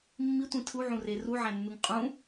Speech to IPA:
mːitʷĩ tʰuʕũre ruʕæ̃nːuŋ qʼũ

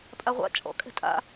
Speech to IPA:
pʼaʁʷa̰ t͡ʃʼɔ̰kʼɛ̤ tʼa̰

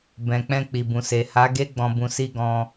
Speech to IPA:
bɛ̃˨k͡pɛ̃˧ k͡pi˨bũ˨se˨ ha˨˦ ɡe˦ ɡ͡bɔ̃˧bũ˧ si˧ ɡɔ̃˧

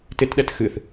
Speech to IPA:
tɪtɗɛt xɨθ

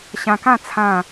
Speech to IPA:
ɕã˧kã˥˧ t͡sʰã˥˧

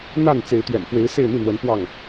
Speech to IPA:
n̪a˥˨nt͡se˨˦ɪ̯ t̪ɥɛ̰˨˩nfwe˨˦ɪ̯ se˥˨ɪ̯n̪i˥˨n̪wə˨˦n pwɑ˥˨ŋ

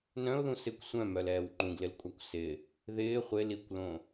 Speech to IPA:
nœ̃ʊ̯ðũ sɪkʷ sʷœ̃mœlɛːw ŋ͡ǃũɡlɪlkʷʼakʷ sɪ | ðɪː χʷɪ likʷlõ

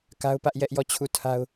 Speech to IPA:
ka˦ʊ̯pä˦ʔ jɛ˦ʔjɔ˦˨ t͡ɕʰu˦˨tʰa˦ʊ̯

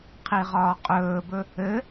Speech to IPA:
qʰiʁɒːqʼɵːbɵ | ɘ

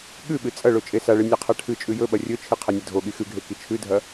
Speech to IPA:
ɠʉɓɨ t͡sʼɐɭo t͡ʃʼesaɭɨ nʲaqʰaʈʰɨt͡ʃʼʉ jɵ ɓɐrʲɵt͡ʃʰɨ qʰɐnʲɐdʱoɠi xʉɡʱe kit͡ʃʰʉdʱɐ

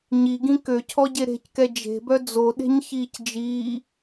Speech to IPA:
ɲiɡĩ køcʰɔɟe ɾe̤ckɛ d͡ʒe̤bœ d͡zoɗe̤ɲçiːc d͡ʒiː

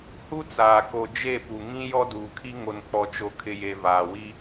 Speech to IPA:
hu˦t͡saː˨ko˨ d͡ʒe˦˨pu˨ŋĩ˦ jɔ˦duː˨kʰi˦ ŋo˨nk͡pɔ˨t͡ʃo˨kʰɪ˨ je˨vaː˨wi˦

